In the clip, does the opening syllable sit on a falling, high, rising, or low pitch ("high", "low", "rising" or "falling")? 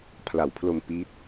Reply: low